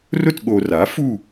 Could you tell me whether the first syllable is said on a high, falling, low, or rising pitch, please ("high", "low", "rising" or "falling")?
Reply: falling